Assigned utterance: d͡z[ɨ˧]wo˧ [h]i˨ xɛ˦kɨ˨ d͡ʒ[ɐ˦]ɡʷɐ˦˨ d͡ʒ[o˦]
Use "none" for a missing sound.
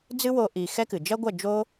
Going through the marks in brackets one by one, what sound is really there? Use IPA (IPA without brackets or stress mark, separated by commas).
ɨ˦, ʔ, ɐ˦, o˦